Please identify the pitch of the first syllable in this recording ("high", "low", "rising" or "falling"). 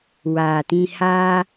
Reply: low